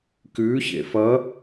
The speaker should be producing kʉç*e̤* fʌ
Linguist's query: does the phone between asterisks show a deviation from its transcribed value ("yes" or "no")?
yes